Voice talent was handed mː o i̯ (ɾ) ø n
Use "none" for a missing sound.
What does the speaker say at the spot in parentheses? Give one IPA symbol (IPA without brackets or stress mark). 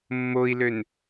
l